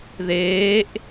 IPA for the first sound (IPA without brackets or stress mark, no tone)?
ð